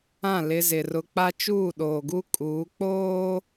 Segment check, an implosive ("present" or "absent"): present